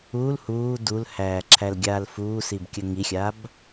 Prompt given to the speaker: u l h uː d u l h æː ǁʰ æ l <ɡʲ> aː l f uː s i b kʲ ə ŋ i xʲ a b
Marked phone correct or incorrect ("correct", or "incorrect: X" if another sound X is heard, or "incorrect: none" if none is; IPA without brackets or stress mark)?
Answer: correct